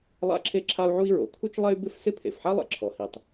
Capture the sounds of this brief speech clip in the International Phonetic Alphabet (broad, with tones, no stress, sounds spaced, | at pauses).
lˠ a̰˥ ǁʰ e˥ ǁʰ a˥ u̯ ʕ u˥ i̯ ɹ o̰˩ kʰ u˥ t͡ʃ lˠ ɛ˥ y̯ b ɪ˥ f s ɪ˥ pʰ ḛ˩ f ħ a˥ lˠ ɛ̰˩ ǁʰ ɔ˩ h i˩ tˤ